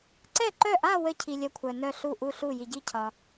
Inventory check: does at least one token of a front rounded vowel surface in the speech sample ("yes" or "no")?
yes